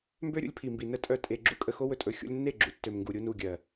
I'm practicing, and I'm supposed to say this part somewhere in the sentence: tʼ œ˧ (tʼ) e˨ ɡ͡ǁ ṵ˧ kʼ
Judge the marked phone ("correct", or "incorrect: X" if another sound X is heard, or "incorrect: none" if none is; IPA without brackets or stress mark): correct